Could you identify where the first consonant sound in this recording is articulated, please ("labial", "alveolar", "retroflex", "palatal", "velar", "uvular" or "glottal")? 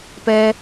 labial